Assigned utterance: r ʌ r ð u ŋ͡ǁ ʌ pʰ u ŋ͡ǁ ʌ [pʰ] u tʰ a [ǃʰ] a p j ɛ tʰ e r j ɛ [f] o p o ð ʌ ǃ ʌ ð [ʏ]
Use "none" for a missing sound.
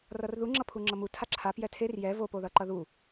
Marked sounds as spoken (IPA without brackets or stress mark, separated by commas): m, ǁʰ, v, u